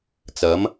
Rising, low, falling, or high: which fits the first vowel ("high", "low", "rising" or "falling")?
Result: rising